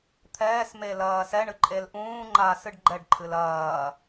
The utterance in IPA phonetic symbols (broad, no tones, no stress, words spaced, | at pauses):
t̪ʰɛːs melɐːsɛ ɳɨǃʼelʔũː ŋ͡ǃaːsɨɖɡ͡ǃɛɖ ǃʰɨlɐː